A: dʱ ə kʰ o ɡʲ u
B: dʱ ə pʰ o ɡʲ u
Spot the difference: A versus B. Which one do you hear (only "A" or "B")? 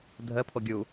B